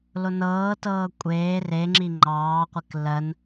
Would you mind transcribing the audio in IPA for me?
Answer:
lonɤːtɤː kʷʼeː reŋ͡ǁi ŋ͡ǃɑːqʷek lɜn

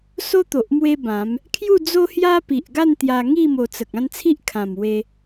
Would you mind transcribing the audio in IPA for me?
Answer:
so˦t̪o˨ʔ mwe˦bã˨˦m | kʰju˥˧d͡zo˦hja˦ pi˨ʔɡa˥˧n t̪ja˧ŋi˥˧ mo˧t͡sə˨k̚ ã˥˧nt͡sʰi˦ʔ kʰã˨˩m we˧

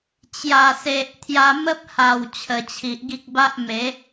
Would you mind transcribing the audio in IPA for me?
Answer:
t͡ɕja˨˩se˨ʔ t̪ʰja˧ mə˦p̚ ha˨˩w t͡ɕʰə˨˩t͡ɕʰi˨ʔɡi˦k̚ ba˦ʔme˨˦

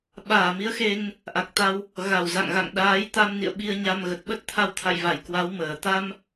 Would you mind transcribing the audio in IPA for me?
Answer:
ɓaː˧˩mi˨˦ə̯ xe˧ŋ | ʔa˨˩k̚t̪a˧w | ɣa˧˩wza̰˧˨ŋ ɣa̰˧˨ŋ ɗaː˨˦jt̪a˧mnḭ˧˨ə̯ ɓi˧ə̯ɲa˧mɣə˨˩t̚ ɓə˦˥t̚t̪ʰa˧wt̪ʰa̰˧˨jva˧˩j kwa˨˦wməː˧˩ t̪a˧m

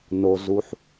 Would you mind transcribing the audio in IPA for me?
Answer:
no˩zu˩ħ

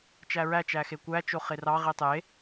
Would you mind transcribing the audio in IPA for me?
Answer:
t͡ʃæɹæt͡ʃæ xekʷæt͡ʃo χerɑʁi tˤe

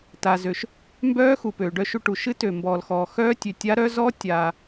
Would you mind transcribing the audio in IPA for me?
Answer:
ta˩zø˩ʃ | mbœː˦˥xu˩pøː˩ ɖœ˧ ʃu˧ʈu˩ ʃɨ˦˥tø˩mbɔː˩lxɔː˩ xœː˦˥tʲø˩ tʲa˦˥ɾœ˦˥ zɔː˦˥ tʲaː˩

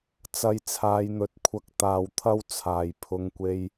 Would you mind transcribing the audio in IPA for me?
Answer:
t͡sɐ˨j t͡sʰaː˨˧jn̪ɵ˨˥t̚kʷʰɐ˧k̚ t̪aː˨wt̪ʰɐ˥w t͡sʰaː˨˩jpʰʊ˨˧ŋkʷe˧j

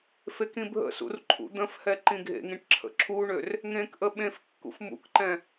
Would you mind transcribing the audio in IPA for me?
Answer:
fekĩbʱə̰sṵr ǃʰṵd̪ə̃fhɛ ǃĩɡʱḛŋĩʈ ǁʰə̰ǁʰuɳør | ŋẽkʔə ɓẽf kːṵfmṵkǃɛ̃

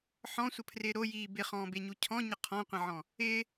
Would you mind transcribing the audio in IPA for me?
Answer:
ħɔ̃sʷəpʰrɪː ɾojiː bɪχɔ̃ːbeɲu cʰɔ̃ɲə qʰɔ̃qʷə̃ʕɔ̃ | ɪː

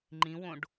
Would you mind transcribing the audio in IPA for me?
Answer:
ŋ͡ǃĩwõɖ

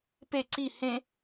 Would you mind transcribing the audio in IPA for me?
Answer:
pe ǀi hẽ

